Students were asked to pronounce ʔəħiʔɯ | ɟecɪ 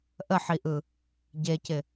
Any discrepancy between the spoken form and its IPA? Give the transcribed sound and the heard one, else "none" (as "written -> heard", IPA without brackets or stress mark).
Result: none